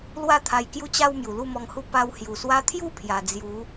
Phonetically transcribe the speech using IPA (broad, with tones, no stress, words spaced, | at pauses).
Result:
lwa˥˧t̪ʰa˧jkju˦t͡ɕa˦w mju˨˩lu˥˧mɔ˧ŋhu˥˧ pa˧whju˨˩swa˧t̪ʰju˥˧ pʰja˧ d͡zju˨˦